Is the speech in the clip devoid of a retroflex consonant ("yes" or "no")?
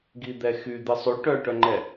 no